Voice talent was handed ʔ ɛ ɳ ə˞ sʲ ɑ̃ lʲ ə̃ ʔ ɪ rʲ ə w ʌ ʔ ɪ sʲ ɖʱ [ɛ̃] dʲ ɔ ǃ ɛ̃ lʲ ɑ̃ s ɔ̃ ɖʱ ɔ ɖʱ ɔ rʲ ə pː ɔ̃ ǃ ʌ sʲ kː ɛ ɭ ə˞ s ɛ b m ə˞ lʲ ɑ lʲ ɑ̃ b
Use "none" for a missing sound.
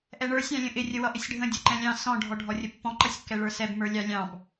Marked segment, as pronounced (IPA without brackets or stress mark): ə̃